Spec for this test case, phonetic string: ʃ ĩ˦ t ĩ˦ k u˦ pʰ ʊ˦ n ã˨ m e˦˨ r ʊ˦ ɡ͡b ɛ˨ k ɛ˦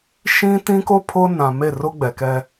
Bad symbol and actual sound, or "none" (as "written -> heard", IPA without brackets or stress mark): u˦ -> o˦